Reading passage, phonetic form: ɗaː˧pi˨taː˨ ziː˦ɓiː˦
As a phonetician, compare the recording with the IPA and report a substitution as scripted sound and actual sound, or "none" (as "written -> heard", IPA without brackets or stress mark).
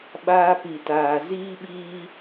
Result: ɗ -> ɓ